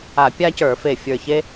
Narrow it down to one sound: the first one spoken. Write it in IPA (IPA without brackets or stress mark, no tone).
a